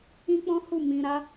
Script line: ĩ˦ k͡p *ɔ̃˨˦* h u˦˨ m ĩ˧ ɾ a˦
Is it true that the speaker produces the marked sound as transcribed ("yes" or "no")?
no